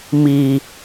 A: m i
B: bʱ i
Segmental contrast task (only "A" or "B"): A